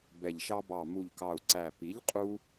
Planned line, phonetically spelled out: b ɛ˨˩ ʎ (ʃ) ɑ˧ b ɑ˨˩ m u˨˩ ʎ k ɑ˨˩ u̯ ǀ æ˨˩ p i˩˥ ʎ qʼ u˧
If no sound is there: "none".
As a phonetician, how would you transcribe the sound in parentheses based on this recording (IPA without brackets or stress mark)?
ʃ